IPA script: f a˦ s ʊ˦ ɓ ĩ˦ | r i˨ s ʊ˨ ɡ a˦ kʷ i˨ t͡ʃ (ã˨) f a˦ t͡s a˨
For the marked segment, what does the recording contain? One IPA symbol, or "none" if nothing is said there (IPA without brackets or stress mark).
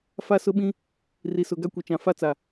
ã˨